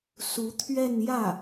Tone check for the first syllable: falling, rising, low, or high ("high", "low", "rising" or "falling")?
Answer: rising